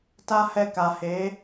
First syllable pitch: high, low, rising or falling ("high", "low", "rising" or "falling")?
high